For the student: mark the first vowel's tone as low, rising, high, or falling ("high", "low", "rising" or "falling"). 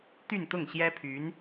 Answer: falling